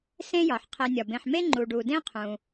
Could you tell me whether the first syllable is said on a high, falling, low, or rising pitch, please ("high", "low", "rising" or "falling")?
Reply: high